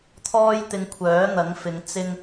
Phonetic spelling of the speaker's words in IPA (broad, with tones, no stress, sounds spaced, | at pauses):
t̪ʰ ɔː˥ j t̪ ɪ˧ ŋ kʷʰ œː˨˥ n̪ ɐ˨˥ ŋ f ɪ˨˧ ŋ t͡s ɪ˥ ŋ